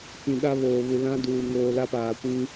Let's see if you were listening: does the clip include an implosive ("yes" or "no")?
yes